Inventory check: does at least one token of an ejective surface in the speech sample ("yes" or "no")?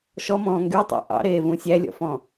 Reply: no